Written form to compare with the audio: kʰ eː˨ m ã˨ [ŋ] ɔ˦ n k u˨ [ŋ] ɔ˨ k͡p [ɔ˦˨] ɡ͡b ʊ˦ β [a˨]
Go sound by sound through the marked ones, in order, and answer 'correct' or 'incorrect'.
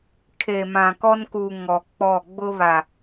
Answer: incorrect: k, correct, correct, correct

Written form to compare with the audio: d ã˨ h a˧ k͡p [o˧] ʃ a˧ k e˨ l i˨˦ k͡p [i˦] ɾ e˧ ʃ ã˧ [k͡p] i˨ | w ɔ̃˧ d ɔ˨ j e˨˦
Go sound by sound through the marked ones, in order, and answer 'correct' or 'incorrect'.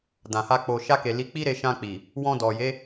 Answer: incorrect: o˨, correct, correct

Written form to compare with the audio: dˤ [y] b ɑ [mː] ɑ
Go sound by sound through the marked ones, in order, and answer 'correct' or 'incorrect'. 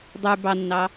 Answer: correct, incorrect: nː

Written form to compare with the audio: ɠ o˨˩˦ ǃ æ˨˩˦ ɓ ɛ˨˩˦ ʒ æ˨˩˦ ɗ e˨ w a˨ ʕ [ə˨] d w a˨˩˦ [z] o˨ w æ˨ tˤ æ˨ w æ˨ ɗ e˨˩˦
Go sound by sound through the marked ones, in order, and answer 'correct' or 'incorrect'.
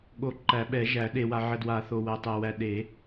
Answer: correct, incorrect: θ

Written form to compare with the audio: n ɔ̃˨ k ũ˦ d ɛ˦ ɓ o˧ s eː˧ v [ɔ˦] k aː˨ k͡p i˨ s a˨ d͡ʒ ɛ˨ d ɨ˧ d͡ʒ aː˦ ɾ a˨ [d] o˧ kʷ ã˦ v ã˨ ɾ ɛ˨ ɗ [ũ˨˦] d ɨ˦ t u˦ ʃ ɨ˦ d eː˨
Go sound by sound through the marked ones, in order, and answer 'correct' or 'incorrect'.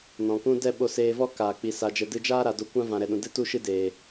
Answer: correct, correct, incorrect: ũ˨

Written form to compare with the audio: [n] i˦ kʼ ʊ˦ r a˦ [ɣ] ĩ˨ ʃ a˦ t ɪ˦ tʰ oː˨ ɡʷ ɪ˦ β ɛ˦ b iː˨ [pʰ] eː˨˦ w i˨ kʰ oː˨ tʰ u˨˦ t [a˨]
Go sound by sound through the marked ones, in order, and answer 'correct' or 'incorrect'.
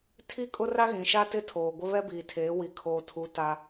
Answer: incorrect: tʰ, correct, incorrect: tʰ, incorrect: a˦

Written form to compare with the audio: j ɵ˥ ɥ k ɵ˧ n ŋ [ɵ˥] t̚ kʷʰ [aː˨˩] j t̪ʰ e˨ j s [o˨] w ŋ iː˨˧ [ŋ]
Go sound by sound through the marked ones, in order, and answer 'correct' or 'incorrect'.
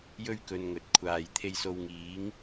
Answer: incorrect: ɵ˨˥, incorrect: aː˨, correct, correct

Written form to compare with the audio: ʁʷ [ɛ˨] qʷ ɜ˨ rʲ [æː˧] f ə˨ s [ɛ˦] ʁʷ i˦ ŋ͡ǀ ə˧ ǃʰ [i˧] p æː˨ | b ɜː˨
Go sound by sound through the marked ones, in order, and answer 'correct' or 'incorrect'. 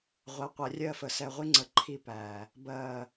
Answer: correct, incorrect: ɜː˧, incorrect: ɛ˧, correct

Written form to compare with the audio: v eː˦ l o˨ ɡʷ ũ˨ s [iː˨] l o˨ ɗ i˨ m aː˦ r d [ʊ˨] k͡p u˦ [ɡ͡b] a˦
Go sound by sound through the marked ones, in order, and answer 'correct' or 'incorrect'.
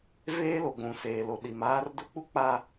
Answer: incorrect: eː˨, incorrect: ʊ˦, incorrect: k͡p

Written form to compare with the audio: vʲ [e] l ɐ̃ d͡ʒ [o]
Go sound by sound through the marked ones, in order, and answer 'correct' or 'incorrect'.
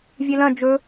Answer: correct, incorrect: ɵ

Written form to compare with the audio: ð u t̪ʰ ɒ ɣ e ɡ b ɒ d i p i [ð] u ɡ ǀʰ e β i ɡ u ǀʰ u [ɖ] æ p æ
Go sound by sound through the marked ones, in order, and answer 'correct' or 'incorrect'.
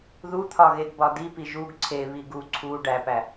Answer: incorrect: ʒ, correct

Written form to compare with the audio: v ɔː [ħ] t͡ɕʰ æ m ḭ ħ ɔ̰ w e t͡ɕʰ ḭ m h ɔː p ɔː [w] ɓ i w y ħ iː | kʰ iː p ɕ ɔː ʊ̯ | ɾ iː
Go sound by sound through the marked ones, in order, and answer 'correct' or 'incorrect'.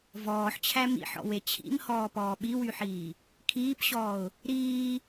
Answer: correct, incorrect: none

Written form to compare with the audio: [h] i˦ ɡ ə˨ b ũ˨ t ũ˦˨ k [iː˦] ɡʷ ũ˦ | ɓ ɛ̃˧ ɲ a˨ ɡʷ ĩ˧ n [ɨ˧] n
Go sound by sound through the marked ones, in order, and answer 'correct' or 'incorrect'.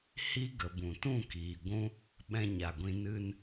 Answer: correct, incorrect: iː˨, correct

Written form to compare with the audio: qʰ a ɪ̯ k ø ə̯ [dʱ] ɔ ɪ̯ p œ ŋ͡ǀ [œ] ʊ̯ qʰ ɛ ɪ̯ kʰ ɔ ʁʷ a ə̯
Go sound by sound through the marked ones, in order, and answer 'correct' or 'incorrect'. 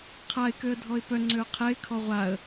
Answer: correct, incorrect: ø

